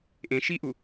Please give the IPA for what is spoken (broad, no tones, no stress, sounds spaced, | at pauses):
ʔ ẽ ʃ i ʔ u